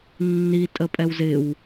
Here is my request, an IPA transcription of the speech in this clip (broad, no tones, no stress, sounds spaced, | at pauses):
nː i tʼ ə pʼ ɛ w z ɪ w